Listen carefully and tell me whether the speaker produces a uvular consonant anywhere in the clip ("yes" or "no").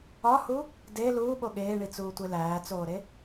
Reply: no